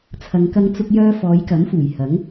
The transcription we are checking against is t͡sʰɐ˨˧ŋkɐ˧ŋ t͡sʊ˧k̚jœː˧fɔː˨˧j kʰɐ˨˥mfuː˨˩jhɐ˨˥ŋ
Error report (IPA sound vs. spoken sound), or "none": kʰ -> k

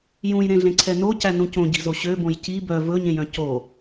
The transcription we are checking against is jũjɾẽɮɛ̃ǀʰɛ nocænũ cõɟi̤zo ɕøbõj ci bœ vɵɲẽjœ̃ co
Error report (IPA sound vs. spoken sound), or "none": ɛ̃ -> ẽ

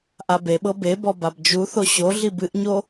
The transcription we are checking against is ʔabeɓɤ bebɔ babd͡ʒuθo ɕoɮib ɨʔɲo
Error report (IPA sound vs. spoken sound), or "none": none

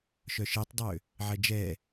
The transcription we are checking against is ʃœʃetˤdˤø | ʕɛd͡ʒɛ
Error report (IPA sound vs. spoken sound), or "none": none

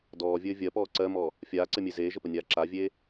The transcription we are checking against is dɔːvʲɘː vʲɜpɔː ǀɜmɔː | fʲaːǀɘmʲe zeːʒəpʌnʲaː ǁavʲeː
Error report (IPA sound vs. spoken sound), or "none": ʌ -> ə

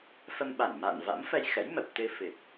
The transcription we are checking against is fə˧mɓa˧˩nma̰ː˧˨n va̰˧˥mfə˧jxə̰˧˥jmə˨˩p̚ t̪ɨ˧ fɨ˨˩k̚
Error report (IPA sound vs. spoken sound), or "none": none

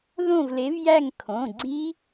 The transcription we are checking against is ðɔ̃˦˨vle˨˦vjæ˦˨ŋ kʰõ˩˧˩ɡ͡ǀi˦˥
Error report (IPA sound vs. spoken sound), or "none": ɔ̃˦˨ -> õ˦˨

